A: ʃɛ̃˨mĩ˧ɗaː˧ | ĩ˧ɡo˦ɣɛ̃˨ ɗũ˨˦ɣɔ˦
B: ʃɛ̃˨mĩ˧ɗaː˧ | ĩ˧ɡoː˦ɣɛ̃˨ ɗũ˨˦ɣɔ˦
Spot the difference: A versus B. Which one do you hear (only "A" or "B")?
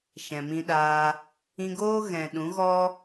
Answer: B